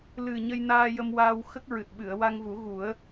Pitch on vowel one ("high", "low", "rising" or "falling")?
low